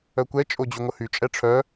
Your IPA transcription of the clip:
œ kʷ ɛ t͡ʃʼ o d͡ʑ y ŋʷ ə h y t͡ʃʼ ɛ ʈ͡ʂʰ œ

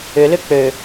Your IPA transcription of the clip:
ʏ l ʏ k͡p ø

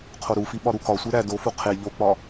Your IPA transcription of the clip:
qʰ o ɾ u f i ɓ ɒ ɾ u k ɒ sʷ e ɾ æ d o f u qʰ e ʎ o k͡p ɒ

